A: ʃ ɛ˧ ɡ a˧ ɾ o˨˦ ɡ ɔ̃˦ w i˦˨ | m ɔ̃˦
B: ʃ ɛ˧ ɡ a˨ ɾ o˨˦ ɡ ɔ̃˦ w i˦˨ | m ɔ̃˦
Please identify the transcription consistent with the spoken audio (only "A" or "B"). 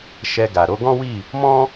B